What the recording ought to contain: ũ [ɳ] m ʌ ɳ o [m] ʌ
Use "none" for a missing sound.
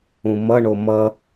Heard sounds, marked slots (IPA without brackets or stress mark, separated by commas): none, m